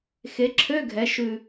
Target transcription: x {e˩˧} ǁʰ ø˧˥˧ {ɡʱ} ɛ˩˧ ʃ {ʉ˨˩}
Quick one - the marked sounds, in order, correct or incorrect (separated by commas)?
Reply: correct, correct, correct